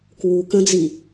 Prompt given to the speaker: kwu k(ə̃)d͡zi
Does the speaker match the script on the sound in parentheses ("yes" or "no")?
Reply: yes